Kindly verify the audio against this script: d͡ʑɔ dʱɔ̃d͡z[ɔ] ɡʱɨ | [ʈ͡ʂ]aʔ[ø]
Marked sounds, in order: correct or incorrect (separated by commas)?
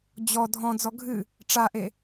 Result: correct, correct, incorrect